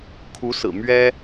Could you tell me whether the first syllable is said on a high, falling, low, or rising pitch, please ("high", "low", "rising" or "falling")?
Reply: rising